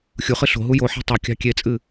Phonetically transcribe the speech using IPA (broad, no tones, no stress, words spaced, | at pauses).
xʲuχɨ ɬo̤ɦu joħa̤ tˤɛkʲɑ̤ kʲet͡sʼɨ